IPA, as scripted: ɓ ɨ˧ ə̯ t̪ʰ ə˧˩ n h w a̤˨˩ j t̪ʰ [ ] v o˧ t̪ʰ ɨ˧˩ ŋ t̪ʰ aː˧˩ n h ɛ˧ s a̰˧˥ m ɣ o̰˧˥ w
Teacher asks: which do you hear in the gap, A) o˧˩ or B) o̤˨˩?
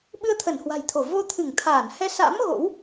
A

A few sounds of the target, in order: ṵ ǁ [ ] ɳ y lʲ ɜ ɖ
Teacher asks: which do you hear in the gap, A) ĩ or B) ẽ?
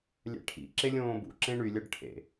B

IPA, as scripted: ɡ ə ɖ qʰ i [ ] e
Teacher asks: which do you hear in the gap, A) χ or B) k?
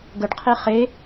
A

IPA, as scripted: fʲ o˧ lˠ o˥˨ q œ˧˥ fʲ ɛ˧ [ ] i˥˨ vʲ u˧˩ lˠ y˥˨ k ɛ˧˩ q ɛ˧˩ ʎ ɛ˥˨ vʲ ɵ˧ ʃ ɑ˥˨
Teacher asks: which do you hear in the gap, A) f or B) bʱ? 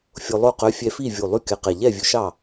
A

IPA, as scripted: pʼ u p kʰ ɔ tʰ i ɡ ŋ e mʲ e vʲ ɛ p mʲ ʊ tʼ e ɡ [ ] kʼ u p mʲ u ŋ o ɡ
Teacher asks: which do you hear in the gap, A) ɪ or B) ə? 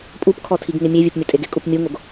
A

